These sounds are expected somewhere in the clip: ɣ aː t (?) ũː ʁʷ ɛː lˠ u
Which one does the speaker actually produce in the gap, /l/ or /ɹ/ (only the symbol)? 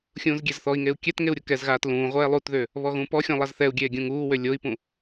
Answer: l